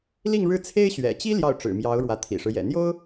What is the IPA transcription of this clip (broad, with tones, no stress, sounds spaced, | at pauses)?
l i˥˧ ŋ ɻ ɻ̩˥˩ t͡sʰ e˥ ɪ̯ ɕ ɥ ɛ̰˨˩ t͡ɕ i˥ l j ɑ˥˩ ʊ̯ ʈ͡ʂ ɻ̩˨˩ m j ɑ˧˥ ʊ̯ ɻ w ä˧˥ t̪ʰ ḭ˨˩ ʂ ɻ̩˦ j ɛ̰˨˩ n̪ j o˥ ʊ̯